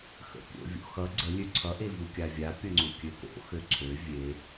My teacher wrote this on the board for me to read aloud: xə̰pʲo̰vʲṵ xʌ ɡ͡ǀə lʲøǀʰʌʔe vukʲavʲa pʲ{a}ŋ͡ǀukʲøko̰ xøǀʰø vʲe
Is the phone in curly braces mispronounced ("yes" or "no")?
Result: yes